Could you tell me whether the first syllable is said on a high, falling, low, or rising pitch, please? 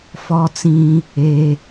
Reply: high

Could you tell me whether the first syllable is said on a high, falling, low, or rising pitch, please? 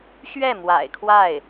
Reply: falling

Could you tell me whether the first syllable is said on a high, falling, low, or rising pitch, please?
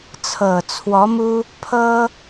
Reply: low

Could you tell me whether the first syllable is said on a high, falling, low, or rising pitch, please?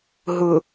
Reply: low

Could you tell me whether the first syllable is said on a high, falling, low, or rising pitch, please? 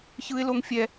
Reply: high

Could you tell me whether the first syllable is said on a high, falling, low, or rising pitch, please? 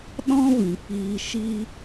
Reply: high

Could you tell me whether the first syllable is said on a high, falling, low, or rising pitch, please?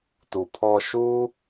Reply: low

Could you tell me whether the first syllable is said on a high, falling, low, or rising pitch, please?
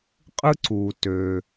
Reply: high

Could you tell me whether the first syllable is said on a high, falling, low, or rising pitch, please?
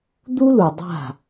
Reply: high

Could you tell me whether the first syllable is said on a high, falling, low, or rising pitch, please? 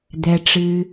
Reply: low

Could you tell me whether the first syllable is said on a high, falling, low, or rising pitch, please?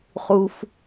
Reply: low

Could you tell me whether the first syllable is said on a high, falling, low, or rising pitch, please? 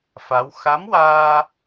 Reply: rising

